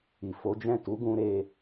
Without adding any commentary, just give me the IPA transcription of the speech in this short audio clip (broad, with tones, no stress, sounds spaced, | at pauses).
i˨ f o˨˦ d͡ʒ ɛ̃˦˨ t u˨˦ ɡ ũ˧ ɾ e˧